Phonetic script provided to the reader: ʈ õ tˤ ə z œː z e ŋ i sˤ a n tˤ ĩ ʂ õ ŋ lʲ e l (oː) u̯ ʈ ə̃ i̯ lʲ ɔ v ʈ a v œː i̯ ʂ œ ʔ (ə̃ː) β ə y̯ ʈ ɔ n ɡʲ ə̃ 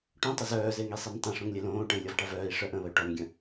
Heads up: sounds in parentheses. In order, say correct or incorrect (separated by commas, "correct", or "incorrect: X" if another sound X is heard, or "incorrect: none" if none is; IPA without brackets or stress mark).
incorrect: õː, correct